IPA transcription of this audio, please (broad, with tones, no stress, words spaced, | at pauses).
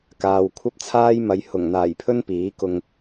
kaː˨wkʷʰɐ˥p̚t͡sʰaː˥jmɐ˨˧j hʊ˨˩ŋn̪aː˨˩jpʰɵ˥n piː˨˥kʊ˧ŋ